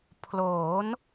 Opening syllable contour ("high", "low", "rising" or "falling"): rising